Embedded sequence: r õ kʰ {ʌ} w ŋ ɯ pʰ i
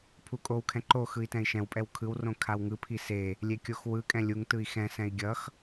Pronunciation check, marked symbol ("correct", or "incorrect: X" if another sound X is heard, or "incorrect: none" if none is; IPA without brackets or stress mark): incorrect: a